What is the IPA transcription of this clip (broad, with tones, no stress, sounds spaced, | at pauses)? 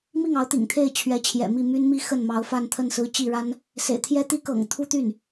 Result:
m i˥˩ ŋ ɑ˧˥ ʊ̯ t̪ ḭ˨˩ ŋ t̪ʰ e˥˩ ɪ̯ t͡ɕʰ ɥ ɛ˧˥ t͡ɕʰ j ɛ̰˨˩ m i˥˩ m y˥ n m i˥ x ə˥˩ n m ɑ˧˥ ʊ̯ f a˥˧ n t̪ʰ ə˥˩ n s ɹ̩˥ t͡ɕ i˥˩ ɻ a˥ n | s ḛ˨˩ ɪ̯ t̪ʰ j ɛ˥ t̪ i˥ k ɤ̰˨˩ ŋ t̪ʰ u˥ t̪ y˥˩ n